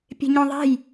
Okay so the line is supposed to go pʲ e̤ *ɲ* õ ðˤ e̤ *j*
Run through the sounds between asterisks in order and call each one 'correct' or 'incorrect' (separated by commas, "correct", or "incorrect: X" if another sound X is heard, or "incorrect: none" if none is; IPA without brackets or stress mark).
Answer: correct, correct